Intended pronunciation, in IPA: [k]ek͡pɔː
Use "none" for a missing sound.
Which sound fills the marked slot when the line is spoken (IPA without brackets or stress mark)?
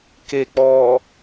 k